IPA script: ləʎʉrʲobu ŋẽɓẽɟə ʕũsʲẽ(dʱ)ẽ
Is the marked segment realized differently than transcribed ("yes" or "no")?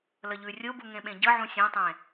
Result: yes